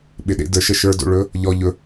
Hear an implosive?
yes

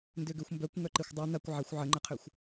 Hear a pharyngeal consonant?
yes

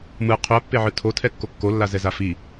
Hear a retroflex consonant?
no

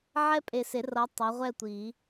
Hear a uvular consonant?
yes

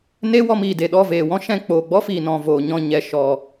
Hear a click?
no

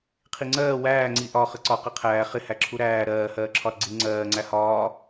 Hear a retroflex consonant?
no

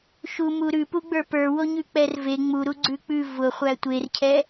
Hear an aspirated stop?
yes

